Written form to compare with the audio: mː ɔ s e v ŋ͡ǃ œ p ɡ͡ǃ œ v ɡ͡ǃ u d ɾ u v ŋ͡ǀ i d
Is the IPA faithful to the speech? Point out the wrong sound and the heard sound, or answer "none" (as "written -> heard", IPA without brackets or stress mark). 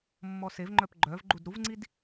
none